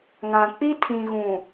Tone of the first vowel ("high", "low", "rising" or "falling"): low